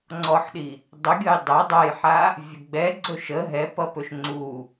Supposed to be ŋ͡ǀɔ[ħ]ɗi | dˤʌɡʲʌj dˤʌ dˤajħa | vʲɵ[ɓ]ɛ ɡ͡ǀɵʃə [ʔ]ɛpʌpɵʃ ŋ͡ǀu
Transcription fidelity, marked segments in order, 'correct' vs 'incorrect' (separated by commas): correct, incorrect, incorrect